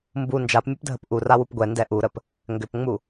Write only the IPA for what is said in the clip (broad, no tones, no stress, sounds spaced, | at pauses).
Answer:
m b u n d͡ʒ a p mʲ ɛ p dʱ ə p ʔ u r a w u p ɡʷ ɛ n d ɛ ʔ u ɾ ə p | ŋ ɡ ʏ p ŋ͡m u